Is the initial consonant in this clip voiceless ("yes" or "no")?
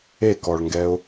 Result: yes